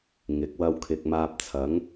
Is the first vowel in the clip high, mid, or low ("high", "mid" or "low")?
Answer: high